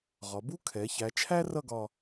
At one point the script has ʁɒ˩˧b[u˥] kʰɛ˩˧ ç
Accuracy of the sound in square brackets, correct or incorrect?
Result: correct